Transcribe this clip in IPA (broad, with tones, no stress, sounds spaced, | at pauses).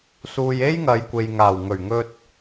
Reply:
s uː˨ j e˥ j ŋ ɐ˨˧ j kʷ e˨ j ŋ aː˨˩ w ŋ ɵ˨˩ ɥ ŋ ɵ˧ t̚